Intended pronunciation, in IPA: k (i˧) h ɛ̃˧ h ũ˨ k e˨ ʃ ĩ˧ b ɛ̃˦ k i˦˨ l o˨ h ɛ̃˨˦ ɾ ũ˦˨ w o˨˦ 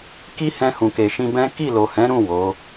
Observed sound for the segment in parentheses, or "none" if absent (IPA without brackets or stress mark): i˦